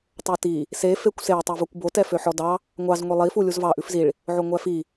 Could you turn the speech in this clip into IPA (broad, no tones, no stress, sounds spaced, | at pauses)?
tˤ o t i | s e f e kʷ s e tˤ ɛ v o kʷ b o t ɛ f ø ħ ɔ d ɑ | ŋʷ ɑ z ŋʷ e lˠ i f u lʲ u z v ɑ ʔ ʉ f z i ɭ | ʕ o ŋʷ æ f i